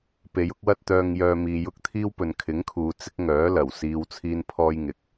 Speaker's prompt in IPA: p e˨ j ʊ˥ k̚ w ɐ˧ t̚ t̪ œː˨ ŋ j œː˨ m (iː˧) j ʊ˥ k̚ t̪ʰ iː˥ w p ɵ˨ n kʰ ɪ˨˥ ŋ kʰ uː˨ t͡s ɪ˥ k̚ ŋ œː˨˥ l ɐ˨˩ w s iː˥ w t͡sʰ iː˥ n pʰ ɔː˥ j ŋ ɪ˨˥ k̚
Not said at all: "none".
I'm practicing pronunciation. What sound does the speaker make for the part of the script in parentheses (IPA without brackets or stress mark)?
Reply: iː˧